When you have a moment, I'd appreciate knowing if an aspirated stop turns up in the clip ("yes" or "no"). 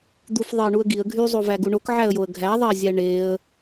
no